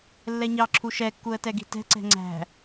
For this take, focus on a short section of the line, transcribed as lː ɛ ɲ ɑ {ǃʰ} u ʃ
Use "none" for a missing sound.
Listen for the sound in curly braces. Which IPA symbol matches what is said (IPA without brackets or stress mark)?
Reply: ǁʰ